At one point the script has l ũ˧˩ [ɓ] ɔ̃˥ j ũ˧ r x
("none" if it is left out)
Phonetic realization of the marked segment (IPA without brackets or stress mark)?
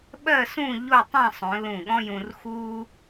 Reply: ɠ